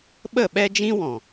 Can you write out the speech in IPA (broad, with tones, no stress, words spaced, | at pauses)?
ɓə˦˨ɓɛ˦d͡ʒĩ˦ wɔ̃˨